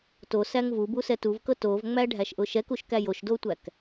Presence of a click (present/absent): absent